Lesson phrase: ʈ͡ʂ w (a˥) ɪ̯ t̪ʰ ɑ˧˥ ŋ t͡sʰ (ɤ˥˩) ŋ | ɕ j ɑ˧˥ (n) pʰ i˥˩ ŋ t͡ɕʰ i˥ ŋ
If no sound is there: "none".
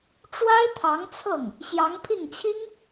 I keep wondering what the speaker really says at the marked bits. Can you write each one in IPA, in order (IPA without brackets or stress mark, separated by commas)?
a˥, ɤ˥˩, ŋ